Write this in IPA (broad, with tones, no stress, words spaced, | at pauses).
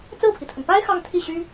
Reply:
t͡sɹ̩˥˩pʰi˩t̪ʰə˩n pa˥ɪ̯ xɑ˥˧ŋt̪ʰi˥˩ɕy˥